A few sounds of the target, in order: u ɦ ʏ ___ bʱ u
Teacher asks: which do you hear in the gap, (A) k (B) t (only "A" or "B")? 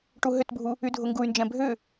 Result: B